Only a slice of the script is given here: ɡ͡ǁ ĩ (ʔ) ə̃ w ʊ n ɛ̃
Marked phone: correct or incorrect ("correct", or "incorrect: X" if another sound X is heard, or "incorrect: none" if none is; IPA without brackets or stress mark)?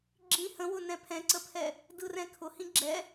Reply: incorrect: h